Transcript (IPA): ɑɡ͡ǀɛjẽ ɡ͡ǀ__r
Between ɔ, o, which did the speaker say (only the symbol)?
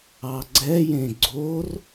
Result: o